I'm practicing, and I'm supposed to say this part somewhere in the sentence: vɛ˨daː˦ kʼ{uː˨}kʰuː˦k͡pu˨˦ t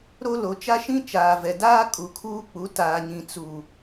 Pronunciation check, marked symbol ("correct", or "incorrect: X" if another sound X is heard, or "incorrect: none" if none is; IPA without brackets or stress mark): incorrect: u˨